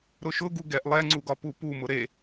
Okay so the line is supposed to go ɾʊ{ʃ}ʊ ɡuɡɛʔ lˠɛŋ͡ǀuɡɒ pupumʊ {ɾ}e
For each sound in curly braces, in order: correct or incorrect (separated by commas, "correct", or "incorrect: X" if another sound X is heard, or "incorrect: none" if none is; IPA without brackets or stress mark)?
correct, correct